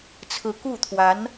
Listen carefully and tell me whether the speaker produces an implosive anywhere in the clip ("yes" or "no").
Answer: no